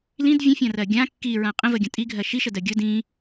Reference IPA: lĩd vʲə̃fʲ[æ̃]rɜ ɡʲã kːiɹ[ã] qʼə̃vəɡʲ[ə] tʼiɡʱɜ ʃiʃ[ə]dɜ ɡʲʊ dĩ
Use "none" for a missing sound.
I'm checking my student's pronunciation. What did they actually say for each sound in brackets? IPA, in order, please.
ã, ã, ə̃, ə

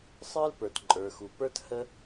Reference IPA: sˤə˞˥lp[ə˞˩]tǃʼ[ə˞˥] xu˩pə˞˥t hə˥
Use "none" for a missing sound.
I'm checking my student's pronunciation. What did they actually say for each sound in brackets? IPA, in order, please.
ə˞˩, ə˞˩

